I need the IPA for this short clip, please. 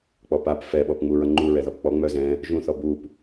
k͡p ɔ p a p f ɛ ɓ ɔ p ŋ͡m u ɹ ʌ ŋ͡ǃ u ɹ ɛ ð ɔ p k͡p ɔ ŋ͡m œ z ɛ̃ | ʒ ũ θ ɔ b u p

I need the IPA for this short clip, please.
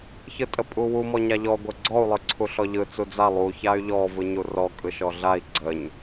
ç ɯ tʼ ə pʼ u w u m ɔ ɲ a ʎ ɔ ɡʷ ə ɡ͡ǀ ɔ u̯ lˠ ɯ ǀʰ u ɬ ɔ ʎ ɯ t͡s u d͡z a lˠ u ç a y̯ ʎ ɔ v ɯ ɲ u r ɔ kʼ ɯ ʃ ɔ ɮ a i̯ ɡ͡ǀ ə ɲ

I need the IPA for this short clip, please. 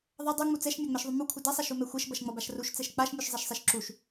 ðˤ ʌ dˤ u ŋ͡m u t͡s ɛ ʃ mʲ a ŋ͡m ɛ ʃ ðˤ u m u kʷʰ ʌ d ɛ sˤ a ʃ u m ɛ xʷ ɛ ʃ b ʌ ʃ ŋ͡m ʌ b a ʃ r u ʃ t͡s ɛ ʃ k͡p a ʃ mʲ u ʃ zˤ ɛ ʃ sˤ ɛ ʃ ǁ u ʃ

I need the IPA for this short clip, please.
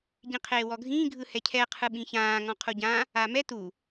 ɟ ĩ qʰ eː w ɔ ɡʱ ĩː ɡʱ ɯ h ɛ cʰ ɛ qʰ ɯ ɓ ĩ ç ãː ŋ ɔ̃ qʰ u ɟ ã | a m ɛ t u

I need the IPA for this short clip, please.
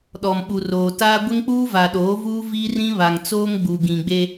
ɗ ɔ˨ m ɓ u˨ r oː˨ t aː˦ ɡʷ ɪ˦ ŋ k͡p uː˦ v a˨ ɗ oː˨˦ v uː˦ v i˦ r ĩ˦ β a˨ ŋ t͡s oː˦ ŋ ɡ͡b u˨ ɡ ĩ˨ ɡ͡b e˦

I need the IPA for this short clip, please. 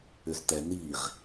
ʏ z t̪ ɛ n i ʁ

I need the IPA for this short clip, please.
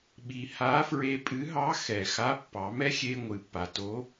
ɓ i˩ h a˧˥ f ɹ e˧ pʼ ɨ˧˥ ɦ ɑ˧˥ x ɛ˩ x a˧˥ pː ɑ˩˧ m ɛ˥ xʲ e˧ ŋʷ ɨ˩ pː a˩ t o˧˥

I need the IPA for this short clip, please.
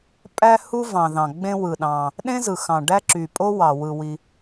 pʼ æ˥ h u˥ v ɑ̃˩ ð ɑ̃˩ ɡ͡b ẽ˥ w ɯ˩ ɗ ɑ̃˩ | ɗ ẽ˥ z ɯ˩ x ɑ̃˩ ɖ æ˥ ǁ y˩ pʼ o˥ w ɑ˩ w ɯ˩ w i˩

